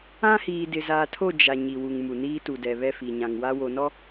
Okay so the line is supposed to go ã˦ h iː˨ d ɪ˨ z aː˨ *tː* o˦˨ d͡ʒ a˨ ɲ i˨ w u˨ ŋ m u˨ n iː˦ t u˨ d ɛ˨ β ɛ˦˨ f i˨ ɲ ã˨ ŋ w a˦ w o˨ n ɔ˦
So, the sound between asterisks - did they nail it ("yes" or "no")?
no